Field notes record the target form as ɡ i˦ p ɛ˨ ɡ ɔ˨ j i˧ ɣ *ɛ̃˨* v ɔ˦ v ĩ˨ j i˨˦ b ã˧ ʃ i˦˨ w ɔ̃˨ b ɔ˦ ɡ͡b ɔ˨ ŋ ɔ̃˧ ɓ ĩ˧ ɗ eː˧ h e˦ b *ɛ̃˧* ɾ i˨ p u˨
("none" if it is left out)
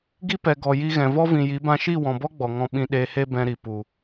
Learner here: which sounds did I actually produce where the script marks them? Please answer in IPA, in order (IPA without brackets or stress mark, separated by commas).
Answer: ɛ̃˨, ɛ̃˧